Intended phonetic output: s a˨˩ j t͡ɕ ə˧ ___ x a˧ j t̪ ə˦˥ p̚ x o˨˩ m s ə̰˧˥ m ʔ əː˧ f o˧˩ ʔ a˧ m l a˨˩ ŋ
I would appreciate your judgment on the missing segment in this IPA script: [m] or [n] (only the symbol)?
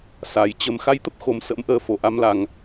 m